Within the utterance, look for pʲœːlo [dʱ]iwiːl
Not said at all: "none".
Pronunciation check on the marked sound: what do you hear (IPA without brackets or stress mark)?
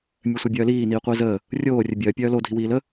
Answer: dʱ